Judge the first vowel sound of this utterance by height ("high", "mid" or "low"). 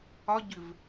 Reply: low